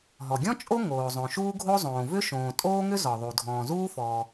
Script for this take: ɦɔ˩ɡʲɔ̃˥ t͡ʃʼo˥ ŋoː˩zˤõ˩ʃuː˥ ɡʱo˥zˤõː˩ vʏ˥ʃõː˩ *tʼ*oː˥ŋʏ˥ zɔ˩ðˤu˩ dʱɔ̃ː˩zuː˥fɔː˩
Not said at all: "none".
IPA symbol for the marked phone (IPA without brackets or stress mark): tʼ